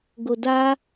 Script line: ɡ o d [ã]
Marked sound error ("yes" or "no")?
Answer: yes